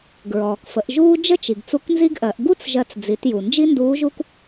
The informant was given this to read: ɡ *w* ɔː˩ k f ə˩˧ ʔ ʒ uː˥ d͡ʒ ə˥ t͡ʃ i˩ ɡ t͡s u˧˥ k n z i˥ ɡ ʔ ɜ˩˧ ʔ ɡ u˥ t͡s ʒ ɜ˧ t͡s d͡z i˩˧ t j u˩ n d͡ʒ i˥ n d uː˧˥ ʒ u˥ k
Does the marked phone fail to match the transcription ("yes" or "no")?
yes